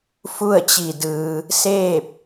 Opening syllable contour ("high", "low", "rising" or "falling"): falling